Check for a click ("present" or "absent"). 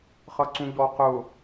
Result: present